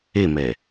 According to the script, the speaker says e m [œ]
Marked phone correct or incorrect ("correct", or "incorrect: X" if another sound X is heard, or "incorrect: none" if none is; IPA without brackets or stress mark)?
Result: incorrect: ɛ